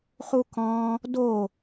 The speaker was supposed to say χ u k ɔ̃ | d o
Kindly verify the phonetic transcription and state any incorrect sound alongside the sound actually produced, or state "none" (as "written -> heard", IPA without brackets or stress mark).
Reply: none